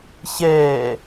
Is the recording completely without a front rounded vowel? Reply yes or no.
yes